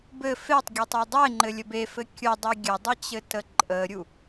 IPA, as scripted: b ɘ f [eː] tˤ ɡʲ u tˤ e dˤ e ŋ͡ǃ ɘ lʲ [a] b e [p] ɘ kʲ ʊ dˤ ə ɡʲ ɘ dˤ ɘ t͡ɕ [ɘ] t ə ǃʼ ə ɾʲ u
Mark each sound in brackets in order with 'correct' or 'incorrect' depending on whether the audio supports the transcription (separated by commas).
incorrect, incorrect, incorrect, correct